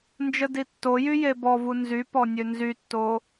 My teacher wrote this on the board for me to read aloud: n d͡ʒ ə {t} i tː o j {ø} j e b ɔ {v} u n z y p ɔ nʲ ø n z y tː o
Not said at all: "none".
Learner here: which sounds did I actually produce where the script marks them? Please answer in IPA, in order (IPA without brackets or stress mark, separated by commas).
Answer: d, y, v